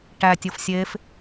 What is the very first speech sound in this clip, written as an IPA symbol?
ʈ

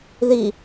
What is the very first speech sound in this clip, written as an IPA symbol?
ð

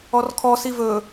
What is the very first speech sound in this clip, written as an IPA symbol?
ɔ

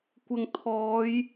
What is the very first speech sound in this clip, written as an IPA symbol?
kʷ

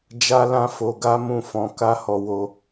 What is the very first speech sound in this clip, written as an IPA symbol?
d͡ʒ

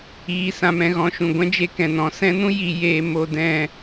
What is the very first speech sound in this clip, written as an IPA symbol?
iː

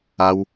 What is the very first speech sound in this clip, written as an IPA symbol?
a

